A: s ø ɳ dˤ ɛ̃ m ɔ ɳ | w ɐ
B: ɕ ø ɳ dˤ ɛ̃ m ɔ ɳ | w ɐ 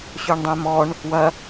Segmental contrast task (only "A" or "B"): B